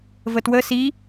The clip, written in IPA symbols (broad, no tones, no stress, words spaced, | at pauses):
vətwə si